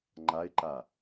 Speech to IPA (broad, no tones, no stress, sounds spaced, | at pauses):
ŋ͡ǃ a ɪ̯ ǃ a